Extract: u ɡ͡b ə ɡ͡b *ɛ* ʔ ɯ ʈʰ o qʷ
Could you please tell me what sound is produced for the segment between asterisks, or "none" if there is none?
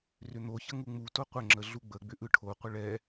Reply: ʏ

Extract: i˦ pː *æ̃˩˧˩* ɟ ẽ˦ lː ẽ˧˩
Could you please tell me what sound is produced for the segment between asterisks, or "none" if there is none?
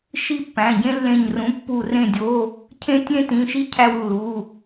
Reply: æ̃˩˧˩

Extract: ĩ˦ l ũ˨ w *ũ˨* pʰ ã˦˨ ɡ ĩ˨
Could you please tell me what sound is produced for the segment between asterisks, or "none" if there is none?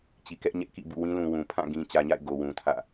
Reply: ũ˨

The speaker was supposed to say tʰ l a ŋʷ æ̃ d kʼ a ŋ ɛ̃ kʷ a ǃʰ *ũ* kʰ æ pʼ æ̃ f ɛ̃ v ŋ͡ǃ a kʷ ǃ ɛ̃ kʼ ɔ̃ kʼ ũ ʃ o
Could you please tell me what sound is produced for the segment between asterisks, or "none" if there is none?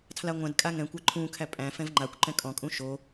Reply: ũː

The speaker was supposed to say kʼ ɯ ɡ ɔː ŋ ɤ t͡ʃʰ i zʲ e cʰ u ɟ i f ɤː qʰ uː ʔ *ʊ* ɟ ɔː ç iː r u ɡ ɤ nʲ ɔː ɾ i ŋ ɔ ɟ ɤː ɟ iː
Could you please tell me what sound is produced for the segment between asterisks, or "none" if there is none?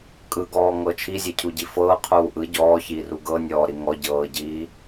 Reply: ɯ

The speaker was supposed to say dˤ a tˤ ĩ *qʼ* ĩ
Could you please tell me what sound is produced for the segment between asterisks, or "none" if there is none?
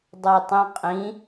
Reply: qʼ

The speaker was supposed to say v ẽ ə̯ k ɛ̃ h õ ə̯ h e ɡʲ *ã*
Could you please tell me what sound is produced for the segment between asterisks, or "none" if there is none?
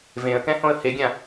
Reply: ã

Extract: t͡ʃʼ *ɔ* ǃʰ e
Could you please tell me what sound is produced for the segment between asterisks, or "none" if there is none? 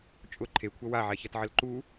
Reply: ʊ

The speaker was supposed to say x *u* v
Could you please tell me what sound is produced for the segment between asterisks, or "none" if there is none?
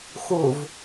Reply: u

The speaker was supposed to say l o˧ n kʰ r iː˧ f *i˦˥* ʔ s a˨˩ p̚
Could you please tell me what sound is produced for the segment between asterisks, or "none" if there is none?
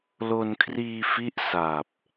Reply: i˦˥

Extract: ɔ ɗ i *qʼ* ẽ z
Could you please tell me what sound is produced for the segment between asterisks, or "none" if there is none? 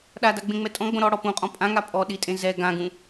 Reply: tʼ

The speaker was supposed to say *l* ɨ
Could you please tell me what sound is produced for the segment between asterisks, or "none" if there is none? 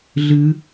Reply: ɮ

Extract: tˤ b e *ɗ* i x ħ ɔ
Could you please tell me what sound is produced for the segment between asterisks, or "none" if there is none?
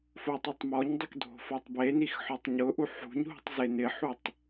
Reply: n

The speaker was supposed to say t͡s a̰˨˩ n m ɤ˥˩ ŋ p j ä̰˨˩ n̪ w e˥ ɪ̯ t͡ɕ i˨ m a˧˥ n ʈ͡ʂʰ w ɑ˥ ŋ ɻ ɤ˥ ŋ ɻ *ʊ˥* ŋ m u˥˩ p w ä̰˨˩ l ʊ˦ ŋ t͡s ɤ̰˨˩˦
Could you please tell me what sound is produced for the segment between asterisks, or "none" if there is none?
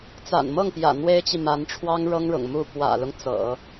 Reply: ʊ̰˨˩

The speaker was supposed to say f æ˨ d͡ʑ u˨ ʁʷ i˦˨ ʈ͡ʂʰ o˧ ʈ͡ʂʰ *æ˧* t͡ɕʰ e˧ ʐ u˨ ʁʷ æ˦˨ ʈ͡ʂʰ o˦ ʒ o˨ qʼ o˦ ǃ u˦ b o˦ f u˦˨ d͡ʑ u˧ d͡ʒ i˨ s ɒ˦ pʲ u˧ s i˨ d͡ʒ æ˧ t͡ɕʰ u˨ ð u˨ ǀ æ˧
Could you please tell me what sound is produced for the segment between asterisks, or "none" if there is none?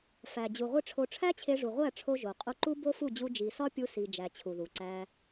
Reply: æ˦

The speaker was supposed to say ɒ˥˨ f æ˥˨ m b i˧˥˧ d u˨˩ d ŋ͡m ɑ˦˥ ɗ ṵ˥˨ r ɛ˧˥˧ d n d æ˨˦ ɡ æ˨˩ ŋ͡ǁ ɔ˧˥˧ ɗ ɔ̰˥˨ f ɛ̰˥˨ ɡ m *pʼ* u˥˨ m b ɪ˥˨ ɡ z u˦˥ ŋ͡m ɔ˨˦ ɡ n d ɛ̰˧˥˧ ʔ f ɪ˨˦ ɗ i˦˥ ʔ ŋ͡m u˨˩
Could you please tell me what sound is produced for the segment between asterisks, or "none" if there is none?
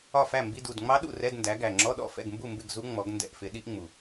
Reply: b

